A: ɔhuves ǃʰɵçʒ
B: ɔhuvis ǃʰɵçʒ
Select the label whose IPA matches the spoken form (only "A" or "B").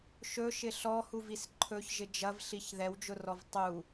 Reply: B